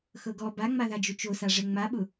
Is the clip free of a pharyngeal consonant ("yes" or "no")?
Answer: yes